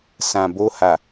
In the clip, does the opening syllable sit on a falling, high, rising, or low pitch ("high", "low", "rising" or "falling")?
low